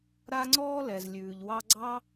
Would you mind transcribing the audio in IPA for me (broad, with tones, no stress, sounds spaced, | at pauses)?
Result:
ɾ a˦ ŋ͡ǀ ɔː˦ l ɛ˨ z lʲ ʉː˨ ʎ w ɑ˧ ɡ͡ǀ ɑ˦